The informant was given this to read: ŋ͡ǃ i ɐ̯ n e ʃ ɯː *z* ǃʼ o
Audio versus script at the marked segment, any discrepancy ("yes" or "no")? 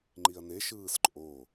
yes